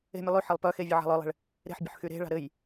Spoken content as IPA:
e̤ mʲ ə lˠ y ħ e lˠ p œ x e vʲ ə ʕ a̤ lˠ œ lˠ e̤ ɭ | ɾ e̤ ħ bʲ ə̤ ħ x y ɾ e̤ ɭ a̤ ɾ ɘ j

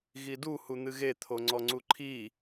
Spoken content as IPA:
ɣ i d u h u n̪ ɨ ɣ e t̪ʰ o ŋ͡ǀ ɔ ŋ͡ǀ u ǃʰ i

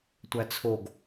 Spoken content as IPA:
tʷ æ t͡sʰ o ɡ

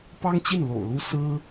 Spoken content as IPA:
p ɑ˥ ŋ t͡ɕ i˥˩ n l o̰˨˩ ʊ̯ l u˥ s ɹ̩˥

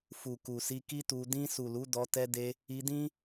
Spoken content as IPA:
f u˨ k u˨ s i˧ k i˦ t u˧ d ĩ˧ s u˨ l u˨˦ d ɔ˧ t ɛ˧ d e˧ | i˧ d ĩ˦

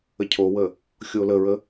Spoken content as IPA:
ə cʰ o w ə | xʲ o l ə ɹ ə

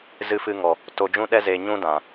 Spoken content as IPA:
z ɨ˧ f ɨ˧ ŋ ɔ˨ | t o˨ d͡ʒ ũ˧ ɗ ɛ˧ z e˨ ɲ ũ˧ d ã˨

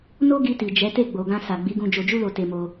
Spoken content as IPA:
n o˦ ɡ i˧ t i˨ d͡ʒ ɛ˨˦ t e˦˨ ɡ͡b o˨ ɡ ã˧ s a˨ ɡ͡b i˨˦ ɡ ũ˧ d͡ʒ o˧ d͡ʒ u˦ l o˧ t e˧ m o˧

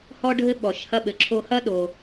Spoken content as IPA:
h ɔ˦ ɖʱ ɘ˦ ɓ ɔ˩ ʃ h ɐ˦ ɓ ɘ˩ ǁʰ o˦ h ɐ˥ ɗ o˩

